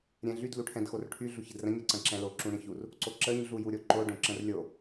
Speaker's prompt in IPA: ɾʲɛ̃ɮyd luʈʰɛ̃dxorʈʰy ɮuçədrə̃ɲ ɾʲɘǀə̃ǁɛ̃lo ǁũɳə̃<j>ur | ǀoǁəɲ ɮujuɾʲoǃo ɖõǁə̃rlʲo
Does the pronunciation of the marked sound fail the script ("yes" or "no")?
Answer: yes